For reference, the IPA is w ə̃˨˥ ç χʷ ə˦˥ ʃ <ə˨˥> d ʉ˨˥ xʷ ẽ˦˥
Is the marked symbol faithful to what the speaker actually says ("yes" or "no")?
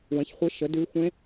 yes